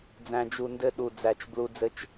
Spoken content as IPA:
d͡z æ̃˨ d͡ʒ u˨ n d ɘ˦ ɗ u˨ d͡z æ˨ t͡ʃ b l u˨ d͡z ɘ˦ t͡ʃ

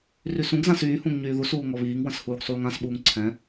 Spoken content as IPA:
r y s ũ ɡ z ã s yː h ũ ŋ ɲ yː ð u s uː ŋ ɔ β iː ŋ w ə̃ s h uː ɡ sˤ uː ŋ ã s ɓ uː ŋ ǀʰ ɛ̃

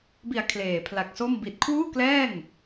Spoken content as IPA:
b i˨˩ a̯ kʰ l eː˨˩ pʰ l a˨˩ k̚ s o˥˩ m b i˨˩ t̚ kʰ w uː˥˩ k l ɛː˥˩ ŋ

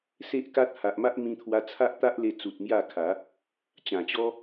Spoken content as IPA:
s e˦ ʔ k a˦ t̚ h a˨ ʔ m a˦ ʔ m ĩ˧ t̪ʰ w a˧ t͡sʰ a˦ ʔ t̪ a˦ ʔ l e˧ t͡s u˨ t̚ m j a˥˧ kʰ a˨˦ | t͡ɕ ã˨˩ t͡ɕ ɔ˦

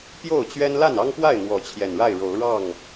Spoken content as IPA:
p j o˥˨ ʊ̯ t͡ɕ ɥ ɛ˦ n l a˥˨ n ɑ˦ ŋ p w a˥˨ ɪ̯ n̪ w ɔ˨˦ t͡ɕʰ j ɛ˨˩ n ɻ a˥˨ ɪ̯ ɻ o˨˦ ʊ̯ ɻ ɑ˥˨ ŋ

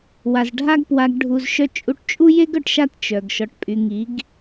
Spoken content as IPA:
w a˨ z ɖʱ a˦ ɡ p w a˧ ɡ ɖʱ u˨ z ʃ œ˧ t͡ʃʼ u˧ ʈ t͡ʃʼ u˦ j e˦ ɡ œ˨ ʈ ʃ a˦˨ t t͡ʃ œ˨ ɡ ʃ ɔ˨ ʈ pʼ y˨ ŋ i˨˦ ɡ

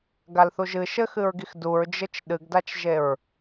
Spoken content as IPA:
ɡ a l θ u ʒ ɨ ʃ ɘ x ɨ ɹ ɡ i x d u ɹ d͡ʒ ɘ t͡ʃ ɗ ɨ ɡ d a t͡ʃ ʒ e ɹ

